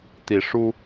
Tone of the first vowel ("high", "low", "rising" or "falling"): rising